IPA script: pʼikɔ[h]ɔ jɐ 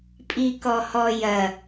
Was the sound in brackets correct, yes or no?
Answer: yes